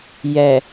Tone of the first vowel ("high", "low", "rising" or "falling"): low